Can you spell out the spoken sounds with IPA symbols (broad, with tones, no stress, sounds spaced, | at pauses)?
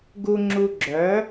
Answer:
ɡ u˦ ŋ͡ǁ u˧ ɡ͡ǁ œ˨˦